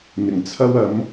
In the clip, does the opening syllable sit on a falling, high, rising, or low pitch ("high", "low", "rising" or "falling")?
low